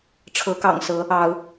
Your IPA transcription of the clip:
ʈ͡ʂʰ ɤ˨˦ k ɑ̰˨˩ ŋ s ɤ˨˦ | ɑ˨˦ ʊ̯

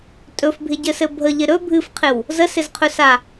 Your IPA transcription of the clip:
tʼ ɵ f bʱ ɪ ɟ ɘ s ɘ bʱ ə ʎ ɪ ɾ ɵ bʱ ɨ f qʰ ɪ w | z ə s ɪ z qʰ ɵ s a

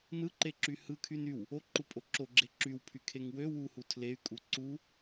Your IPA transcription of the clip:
n ɯ ǃ e ǁ y h ɯ kʰ y n y w | o ǃ u pʼ o ǁ o ɡ͡ǁ e ǁ y w pʰ y kʰ e ŋ w ø w u h u tʰ l e y̯ kʼ u ǀ u

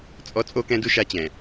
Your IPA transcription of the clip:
t͡sʼ ɔ˦ t͡sʼ o˦ k ɛ̃˦ d u˦ ʃ a˦ t͡ɕ ɛ̃˨

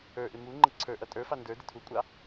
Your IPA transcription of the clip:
ə˞ ʔ ɪ m u ŋ͡ǃ ə ǀʰ ə˞ ʔ ʌ tʼ ə˞ f ɑ n d ə˞ d ɪ tʰ u kʷʼ ɑ

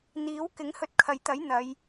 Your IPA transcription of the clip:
n̪ iː˨˥ w k ɪ˨˥ ŋ h ɵ˧ t̚ kʰ ɐ˨˧ j t̪ ɐ˨˥ j n̪ ɐ˨˧ j

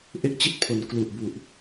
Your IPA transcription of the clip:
ʔ e˥˩ k̚ t͡ɕ i˥˩ t̚ pʰ o˩˦ n k l u˨˩ ʔ b u˨˩ ʔ

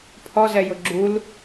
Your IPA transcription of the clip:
pʰ ɔ z ɛ j ʊ ɡ͡ǁ u l

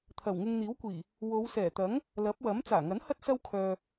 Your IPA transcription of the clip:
t̪ʰ ɐ˨˩ w ŋ ɪ˧ ŋ n̪ iː˨˥ w kʷ iː˨˩ | w o˨˧ w s ɛː˨˩ t̪ ɐ˨˥ ŋ | l ɐ˨˥ p̚ w ɐ˨˥ m t͡s aː˨˩ ŋ ɐ˨˥ n h ɐ˥ t̚ s ɐ˥ w kʰ œː˧

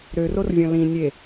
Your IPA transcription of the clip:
ɾ ø r o r vʲ ɔ̃ l ĩ nʲ e

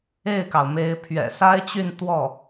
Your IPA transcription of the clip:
e˥˩ ɪ̯ k ɑ˩ ʊ̯ m e˧˥ ɪ̯ pʰ ɥ ɛ̰˨˩ s a˥ ɪ̯ t͡ɕ y˥˧ n t̪ w ɔ˥˩

